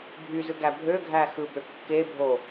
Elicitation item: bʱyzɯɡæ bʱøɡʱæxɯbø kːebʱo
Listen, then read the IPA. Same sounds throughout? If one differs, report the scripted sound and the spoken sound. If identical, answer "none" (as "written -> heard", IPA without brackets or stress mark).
none